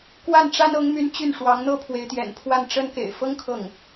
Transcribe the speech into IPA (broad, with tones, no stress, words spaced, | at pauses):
kwa˥˩nʈ͡ʂa˥nɤ˧˥ŋmy˧˥n t͡ɕy˥˩nʂwɑ˧˥ŋn̪ɤ˥ pʰwe˧˥ɪ̯t̪jɛ̰˨˩npʰwa˥˩n ʈ͡ʂə˥nkḛ˨˩ɪ̯ fɤ˥ŋ kʰɤ˥˩ŋ